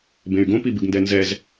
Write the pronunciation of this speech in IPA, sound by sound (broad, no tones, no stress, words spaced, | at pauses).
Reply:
bẽy̯ɡõpibɨɡ ndɛnzɛz